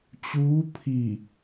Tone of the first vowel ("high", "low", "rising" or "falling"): rising